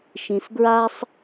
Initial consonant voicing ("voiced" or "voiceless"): voiceless